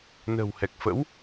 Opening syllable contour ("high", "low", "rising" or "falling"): low